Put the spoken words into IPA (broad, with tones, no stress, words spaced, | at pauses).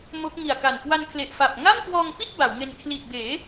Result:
mo˦˥k̚ŋi˨˩a̯ka˨˩n kwa˧nkʰle˨˩ʔfa˨˩p̚ ŋa˥˩mkwɔː˧ŋpi˥˩t̚ ba˩˦wŋe˧n kʰli˨˩t̚beː˩˦